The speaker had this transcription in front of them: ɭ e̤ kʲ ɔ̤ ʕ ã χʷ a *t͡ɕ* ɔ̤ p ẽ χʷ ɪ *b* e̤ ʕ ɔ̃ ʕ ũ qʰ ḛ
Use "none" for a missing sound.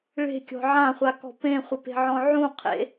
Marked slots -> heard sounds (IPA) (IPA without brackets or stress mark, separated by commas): k, p